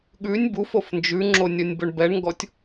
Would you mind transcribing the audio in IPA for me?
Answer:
ɠ ʉ nʲ b u f o f n d͡ʒ ʉ ŋ͡ǁ o nʲ ɔ nʲ b ɵ ɳ b ɛ ɳ ŋ ɡ ɔ tʲ

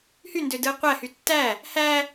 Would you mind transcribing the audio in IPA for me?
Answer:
h y n d ø d ɯ e̯ qʷ æ h y tː æ | h æ

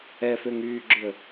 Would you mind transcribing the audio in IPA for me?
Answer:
ɛ f ø ŋ yː ɡ͡ǁ ʏ ə̯

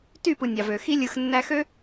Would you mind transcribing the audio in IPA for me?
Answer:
t y˦˨ p ɯ˨ nʲ ɑ˨ v ø˨ x i˧ lʲ ɯ˨ x nː æ˧ x ø˦

